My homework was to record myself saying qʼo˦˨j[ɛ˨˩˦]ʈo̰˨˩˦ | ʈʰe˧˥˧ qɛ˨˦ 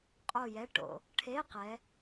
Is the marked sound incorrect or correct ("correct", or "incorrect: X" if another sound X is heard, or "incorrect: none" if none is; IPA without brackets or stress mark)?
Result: incorrect: ɛ˧˥˧